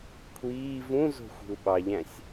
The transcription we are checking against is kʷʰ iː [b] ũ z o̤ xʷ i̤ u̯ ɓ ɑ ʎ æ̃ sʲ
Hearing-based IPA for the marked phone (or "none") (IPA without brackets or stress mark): v